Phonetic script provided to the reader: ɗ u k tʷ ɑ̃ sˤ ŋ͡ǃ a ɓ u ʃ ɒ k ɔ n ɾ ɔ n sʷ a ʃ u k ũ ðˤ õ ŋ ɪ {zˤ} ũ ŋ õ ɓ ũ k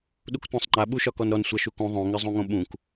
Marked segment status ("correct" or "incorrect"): correct